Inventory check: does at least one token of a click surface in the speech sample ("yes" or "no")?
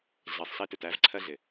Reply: yes